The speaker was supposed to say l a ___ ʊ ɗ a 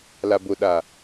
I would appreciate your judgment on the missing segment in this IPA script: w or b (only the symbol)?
b